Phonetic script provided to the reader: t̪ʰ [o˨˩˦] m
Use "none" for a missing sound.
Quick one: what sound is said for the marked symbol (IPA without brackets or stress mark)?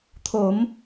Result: o˨˩˦